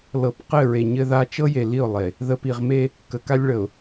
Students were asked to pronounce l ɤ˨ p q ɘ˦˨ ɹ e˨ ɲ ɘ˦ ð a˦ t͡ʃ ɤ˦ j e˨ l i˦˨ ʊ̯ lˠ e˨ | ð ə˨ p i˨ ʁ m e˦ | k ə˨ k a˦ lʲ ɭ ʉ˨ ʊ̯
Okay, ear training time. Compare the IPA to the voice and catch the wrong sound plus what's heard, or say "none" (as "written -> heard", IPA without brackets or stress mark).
ʉ˨ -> ə˨